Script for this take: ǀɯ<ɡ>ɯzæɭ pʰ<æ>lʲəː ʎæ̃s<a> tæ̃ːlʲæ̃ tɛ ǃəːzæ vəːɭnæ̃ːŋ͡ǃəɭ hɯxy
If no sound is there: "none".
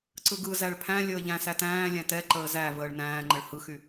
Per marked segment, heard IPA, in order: ɡ, æ̃, æ

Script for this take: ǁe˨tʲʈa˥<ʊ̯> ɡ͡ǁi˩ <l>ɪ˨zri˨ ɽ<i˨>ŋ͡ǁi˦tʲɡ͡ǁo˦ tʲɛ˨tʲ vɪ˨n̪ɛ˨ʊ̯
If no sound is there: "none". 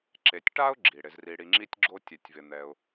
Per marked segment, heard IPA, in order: ʊ̯, ɽ, i˨

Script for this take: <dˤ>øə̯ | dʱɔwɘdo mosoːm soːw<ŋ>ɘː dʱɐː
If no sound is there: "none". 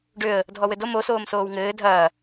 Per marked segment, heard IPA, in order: ɖ, ŋ

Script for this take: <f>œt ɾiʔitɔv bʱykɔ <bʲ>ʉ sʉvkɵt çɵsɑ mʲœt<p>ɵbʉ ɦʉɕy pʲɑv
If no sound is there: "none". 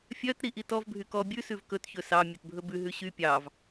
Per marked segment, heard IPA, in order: fʲ, bʲ, bʱ

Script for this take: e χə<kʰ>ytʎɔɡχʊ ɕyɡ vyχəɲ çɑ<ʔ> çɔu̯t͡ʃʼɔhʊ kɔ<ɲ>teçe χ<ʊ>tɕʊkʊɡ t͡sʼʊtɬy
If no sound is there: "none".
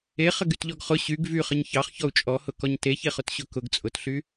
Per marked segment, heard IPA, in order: ɡ, χ, ɲ, ʊ

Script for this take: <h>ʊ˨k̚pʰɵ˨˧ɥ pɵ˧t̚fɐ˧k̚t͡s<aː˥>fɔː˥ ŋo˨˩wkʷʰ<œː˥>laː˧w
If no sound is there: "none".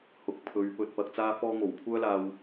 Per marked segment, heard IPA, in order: h, aː˥, œː˥

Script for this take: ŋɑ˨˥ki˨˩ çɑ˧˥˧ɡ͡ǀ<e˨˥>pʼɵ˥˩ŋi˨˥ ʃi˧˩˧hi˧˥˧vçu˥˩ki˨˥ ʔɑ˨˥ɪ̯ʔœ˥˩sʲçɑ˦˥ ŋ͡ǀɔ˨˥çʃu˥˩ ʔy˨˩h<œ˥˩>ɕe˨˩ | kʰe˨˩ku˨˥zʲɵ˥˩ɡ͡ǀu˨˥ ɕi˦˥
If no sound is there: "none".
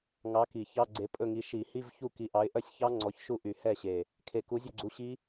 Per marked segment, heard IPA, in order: e˨˥, ɛ˥˩

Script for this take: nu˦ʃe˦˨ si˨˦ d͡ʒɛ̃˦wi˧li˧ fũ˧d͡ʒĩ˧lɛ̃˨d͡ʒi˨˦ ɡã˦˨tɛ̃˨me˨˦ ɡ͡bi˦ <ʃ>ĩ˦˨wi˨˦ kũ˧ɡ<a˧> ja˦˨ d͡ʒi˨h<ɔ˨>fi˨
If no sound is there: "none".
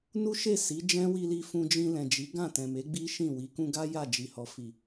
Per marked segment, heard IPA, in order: ʃ, a˦, ɔ˨

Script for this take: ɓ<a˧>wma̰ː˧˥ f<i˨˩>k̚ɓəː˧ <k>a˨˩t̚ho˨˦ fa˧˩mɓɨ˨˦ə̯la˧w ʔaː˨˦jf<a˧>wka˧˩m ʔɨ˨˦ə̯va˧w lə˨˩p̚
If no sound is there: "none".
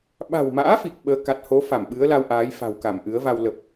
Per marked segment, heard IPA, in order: a̤˨˩, i˨˩, k, a̤˨˩

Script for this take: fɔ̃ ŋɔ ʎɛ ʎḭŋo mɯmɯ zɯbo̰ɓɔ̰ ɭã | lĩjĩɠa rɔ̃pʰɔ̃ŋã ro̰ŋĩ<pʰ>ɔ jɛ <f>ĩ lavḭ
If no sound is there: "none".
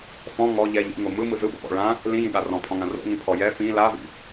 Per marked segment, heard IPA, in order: pʰ, f

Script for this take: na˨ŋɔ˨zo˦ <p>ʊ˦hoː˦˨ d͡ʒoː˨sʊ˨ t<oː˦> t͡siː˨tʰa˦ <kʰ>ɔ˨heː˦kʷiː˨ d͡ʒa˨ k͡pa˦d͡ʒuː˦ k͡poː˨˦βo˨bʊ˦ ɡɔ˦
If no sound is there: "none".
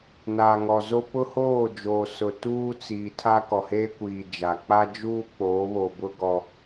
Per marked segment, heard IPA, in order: p, uː˦, k

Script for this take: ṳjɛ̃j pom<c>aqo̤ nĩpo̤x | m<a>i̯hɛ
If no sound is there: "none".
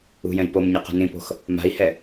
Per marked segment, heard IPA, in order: ɲ, a̤

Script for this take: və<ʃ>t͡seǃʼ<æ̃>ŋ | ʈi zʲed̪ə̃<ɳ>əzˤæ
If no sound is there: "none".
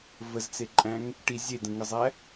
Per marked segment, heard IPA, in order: z, æ̃, ŋ

